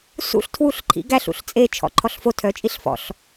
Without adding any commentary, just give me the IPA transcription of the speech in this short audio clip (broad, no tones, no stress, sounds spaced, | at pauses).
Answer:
s ṵ ɬ tʰ w u ɬ ǃʰ ḭ ɡ æ ɬ ṵ ɬ t͡sʼ e t͡ʃʰ ɔ̰ ǃʰ ɔ ɬ f o tʰ œ t͡ʃʼ i ɬ f ɔ̰ ɬ